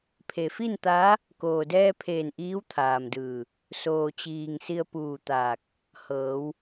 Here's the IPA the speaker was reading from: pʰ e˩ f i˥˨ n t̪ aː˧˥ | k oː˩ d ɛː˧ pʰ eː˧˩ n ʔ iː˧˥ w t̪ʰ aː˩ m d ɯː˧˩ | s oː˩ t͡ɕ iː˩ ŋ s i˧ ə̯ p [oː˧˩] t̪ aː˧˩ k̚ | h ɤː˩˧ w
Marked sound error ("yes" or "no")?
yes